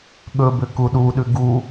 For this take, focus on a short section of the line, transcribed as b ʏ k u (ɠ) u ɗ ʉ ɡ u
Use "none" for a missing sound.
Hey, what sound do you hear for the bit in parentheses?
ɗ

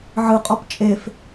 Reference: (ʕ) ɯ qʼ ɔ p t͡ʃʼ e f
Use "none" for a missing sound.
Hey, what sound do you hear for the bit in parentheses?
ʕ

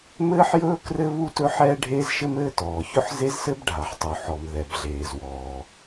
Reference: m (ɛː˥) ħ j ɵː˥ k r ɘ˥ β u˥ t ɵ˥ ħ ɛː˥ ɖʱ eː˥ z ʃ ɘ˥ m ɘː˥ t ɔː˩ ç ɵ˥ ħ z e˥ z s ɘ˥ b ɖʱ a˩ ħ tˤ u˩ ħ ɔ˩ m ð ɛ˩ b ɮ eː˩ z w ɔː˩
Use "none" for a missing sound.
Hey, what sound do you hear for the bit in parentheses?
ɘː˥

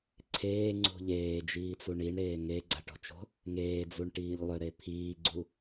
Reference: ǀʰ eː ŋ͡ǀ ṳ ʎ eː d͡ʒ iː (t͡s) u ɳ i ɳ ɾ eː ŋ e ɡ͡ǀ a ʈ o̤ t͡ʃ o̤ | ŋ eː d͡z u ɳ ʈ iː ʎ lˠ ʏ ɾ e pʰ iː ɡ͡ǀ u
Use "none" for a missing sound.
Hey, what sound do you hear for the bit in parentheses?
t͡s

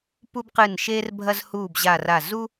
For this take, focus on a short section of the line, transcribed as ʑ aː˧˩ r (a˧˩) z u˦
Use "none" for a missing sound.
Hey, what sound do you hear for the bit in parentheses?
a˧˩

